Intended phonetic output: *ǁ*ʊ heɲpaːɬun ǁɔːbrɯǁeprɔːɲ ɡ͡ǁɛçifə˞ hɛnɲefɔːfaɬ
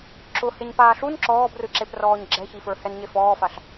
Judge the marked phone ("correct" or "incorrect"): correct